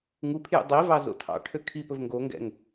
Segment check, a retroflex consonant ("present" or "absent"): present